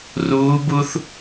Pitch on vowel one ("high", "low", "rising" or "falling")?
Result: rising